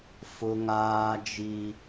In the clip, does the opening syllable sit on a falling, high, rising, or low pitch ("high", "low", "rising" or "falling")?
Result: high